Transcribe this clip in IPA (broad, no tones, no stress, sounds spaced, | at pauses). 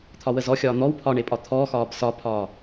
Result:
t̪ʰ ɒ w ə z ɔ xʲ ɒː n̪ ɔ w pʰ ɒ ɳ e pʼ ɒ t̪ʰ ɔː x ɒː b s ɒ pʰ ɒː